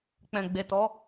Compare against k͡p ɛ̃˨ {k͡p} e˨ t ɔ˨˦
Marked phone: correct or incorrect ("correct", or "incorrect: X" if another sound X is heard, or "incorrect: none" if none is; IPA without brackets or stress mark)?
incorrect: ɡ͡b